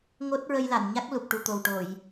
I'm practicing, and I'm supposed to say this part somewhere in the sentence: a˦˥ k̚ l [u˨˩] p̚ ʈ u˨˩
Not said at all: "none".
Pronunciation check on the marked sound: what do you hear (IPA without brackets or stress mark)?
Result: u˨˩